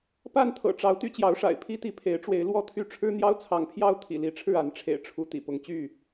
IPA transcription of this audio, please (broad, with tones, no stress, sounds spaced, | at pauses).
p a˥˨ n t̪ʰ ɤ̰˨˩ ʈ͡ʂ ɑ˨˦ ʊ̯ t̪ y˥˨ t͡ɕ j ɑ˨˦ ʊ̯ ʂ a̰˨˩ ɪ̯ pʰ i˦ t̪ i˨˦ pʰ e˨˦ ɪ̯ ʈ͡ʂ w e˨˦ ɪ̯ l w ɔ˦ t̪ʰ y˥˨ ʈ͡ʂʰ ɻ̩˦ n̪ j ɑ˦ ʊ̯ t͡sʰ ɑ˨˦ ŋ pʰ j ɑ˦ ʊ̯ t̪ʰ ḭ˨˩ l i˨˦ ʈ͡ʂʰ ɻ̩˥˨ a˨˦ n ʈ͡ʂʰ ḛ˨˩ ɪ̯ ʈ͡ʂʰ u˨˦ t̪ ḭ˨˩ p ʊ˨˦ ŋ t͡ɕ y˥˨